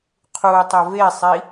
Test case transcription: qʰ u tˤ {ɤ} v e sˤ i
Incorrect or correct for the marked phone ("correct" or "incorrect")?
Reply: incorrect